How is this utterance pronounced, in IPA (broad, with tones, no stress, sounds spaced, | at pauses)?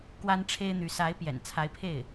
k w a˥ n ʈ͡ʂʰ e˥ ɪ̯ n̪ y˧˥ s a˧˥ ɪ̯ p j ɛ̰˨˩ n t͡sʰ a˧˥ ɪ̯ pʰ e˥˩ ɪ̯